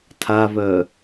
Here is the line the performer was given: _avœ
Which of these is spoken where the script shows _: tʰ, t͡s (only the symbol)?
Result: tʰ